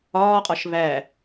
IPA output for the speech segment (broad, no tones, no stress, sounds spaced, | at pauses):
ɒː qʼ ɒ ʃ β æ